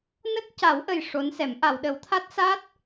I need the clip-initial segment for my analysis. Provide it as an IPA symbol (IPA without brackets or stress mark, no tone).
n